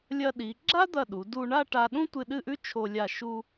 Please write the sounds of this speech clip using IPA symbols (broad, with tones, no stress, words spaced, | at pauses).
lʲɐ˧ɗi˩˧ ɡ͡ǁa˥d̪ɐ˧˩ ɗu˩˧du˧ ɳa˥˧ʈa˧ ɗũ˥tʷɨ˧ ɗɨ˥˧ʔʉ˥ t͡ʃʰo˧ lʲa˧˩ʃu˧